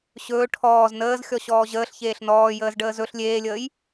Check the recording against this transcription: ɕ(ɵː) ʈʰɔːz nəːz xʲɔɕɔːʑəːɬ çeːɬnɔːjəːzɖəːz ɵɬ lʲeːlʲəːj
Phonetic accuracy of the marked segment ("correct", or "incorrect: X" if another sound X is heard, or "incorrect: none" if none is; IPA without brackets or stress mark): correct